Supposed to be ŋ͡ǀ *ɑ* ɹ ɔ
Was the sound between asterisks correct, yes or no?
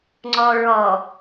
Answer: no